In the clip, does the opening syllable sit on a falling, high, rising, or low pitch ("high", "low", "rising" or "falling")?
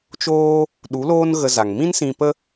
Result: high